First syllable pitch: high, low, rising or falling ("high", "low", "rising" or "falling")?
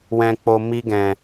low